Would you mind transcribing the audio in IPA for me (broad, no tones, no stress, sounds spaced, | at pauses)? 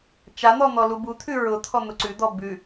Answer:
t͡ʃ a n̪ ɔ n̪ ɔ l u b u t̪ʰ ʉ ɹ ʊ t̪ʰ ɔ n̪ ʊ ǀ ʉ d̪ ɔ b ʉ